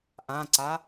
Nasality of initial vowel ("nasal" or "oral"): nasal